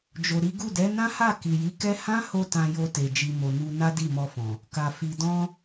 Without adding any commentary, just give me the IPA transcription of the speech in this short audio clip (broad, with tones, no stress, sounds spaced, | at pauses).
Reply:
d͡ʒ o˨ ɾ i˨˦ ɡ u˦˨ d ɛ˨˦ n ã˦ h a˦˨ k i˨ j i˨˦ k ɛ˦ h ã˦ h o˧ t ã˧ j o˧ t e˨ d͡ʒ i˨ m o˨ n u˧ n a˦ d i˦˨ m ɔ˧ f ɔ̃˨ | k a˨ f i˨ d ɔ̃˧